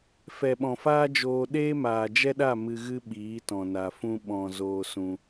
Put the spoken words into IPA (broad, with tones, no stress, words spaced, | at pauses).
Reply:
fɛ˨ɓɔ̃˨faː˦d͡ʒoː˧ ɗeː˦maː˨d͡ʒɛ˦ɗa˦˨ mɨ˧ɣɨ˦ ɓiː˨˦tɔ̃˨na˨ fũ˧ɓɔ̃˨ zoː˧sũ˧